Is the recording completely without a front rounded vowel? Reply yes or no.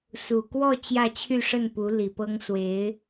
no